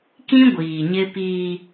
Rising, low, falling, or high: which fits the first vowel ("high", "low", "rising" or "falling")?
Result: high